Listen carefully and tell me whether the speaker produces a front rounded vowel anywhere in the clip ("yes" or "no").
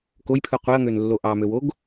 yes